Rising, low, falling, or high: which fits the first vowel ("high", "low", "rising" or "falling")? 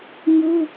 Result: high